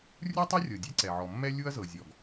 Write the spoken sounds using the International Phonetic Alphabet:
rʲu˥tˤɤ˥rʲɤ˩ dʲe˥ǀɛ˩ʕɔ˩mːɛ˥ lʲu˥ɐ̯zɤ˩ zʲɔ˩ɡ

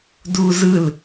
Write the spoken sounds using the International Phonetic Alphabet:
duːzɯl

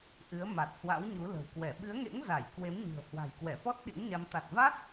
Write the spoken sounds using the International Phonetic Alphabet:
ʔɨ˨˦ə̯ ma˨˩t̚hwa̰˧˥wɲu˨˦ lə̤˨˩wkwɛ˧˩ ɓɨ˨˦ə̯ŋḛ˧˥ŋ za˧˩j kwe˨˦mɲɨ̤˨˩ə̯ hwa̤˨˩jkwɛ˧˩fɔ˦˥t̚ ɗḭ˧˥ŋɲa˧m t̪a˨˩t̚va˦˥t̚

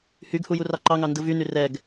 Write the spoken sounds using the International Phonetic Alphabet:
hyɡhu jurɑǃɑŋɑ ndɯvyny rɛɡ

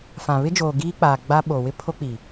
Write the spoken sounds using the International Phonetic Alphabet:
fã˨βɪ˦d͡ʒoː˨ ɡiː˦k͡paː˨ ɡ͡ba˦ɓo˨ wɪ˦pʰo˦k͡pi˨

